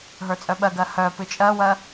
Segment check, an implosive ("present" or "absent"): present